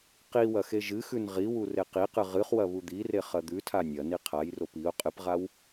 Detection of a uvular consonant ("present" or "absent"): present